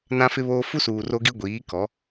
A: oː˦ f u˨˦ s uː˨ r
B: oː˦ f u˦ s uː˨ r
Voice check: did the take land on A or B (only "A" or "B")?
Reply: B